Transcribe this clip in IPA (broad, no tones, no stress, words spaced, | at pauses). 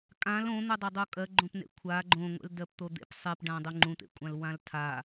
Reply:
kʼãl õn̪udˤadˤu kʼɜɡ͡ǃõpnḛ kʷʰa ɡ͡ǃõŋʷḛl dɜpt̪od̪ḛp sˤepɖãdˤu ŋ͡ǃũt̪ḛkʷʼãl wãltʰa